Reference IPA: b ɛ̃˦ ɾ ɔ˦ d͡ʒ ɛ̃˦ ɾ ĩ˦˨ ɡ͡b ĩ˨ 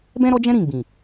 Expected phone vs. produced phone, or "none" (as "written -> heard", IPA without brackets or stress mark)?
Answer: none